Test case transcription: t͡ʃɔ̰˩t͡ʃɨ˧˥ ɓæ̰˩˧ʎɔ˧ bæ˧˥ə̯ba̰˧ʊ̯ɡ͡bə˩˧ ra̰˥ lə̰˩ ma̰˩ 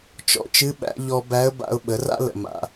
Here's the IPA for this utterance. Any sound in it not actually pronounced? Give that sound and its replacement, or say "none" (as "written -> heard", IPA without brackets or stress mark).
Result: ɡ͡b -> ɓ